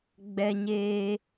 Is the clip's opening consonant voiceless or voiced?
voiced